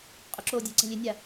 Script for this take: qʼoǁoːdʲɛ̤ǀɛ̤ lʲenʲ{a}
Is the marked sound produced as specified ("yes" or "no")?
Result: yes